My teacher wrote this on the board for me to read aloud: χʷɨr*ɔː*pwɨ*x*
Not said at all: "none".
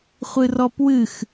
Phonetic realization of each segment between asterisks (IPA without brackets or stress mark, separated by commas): ɔ, x